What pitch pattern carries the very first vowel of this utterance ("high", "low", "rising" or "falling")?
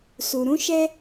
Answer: low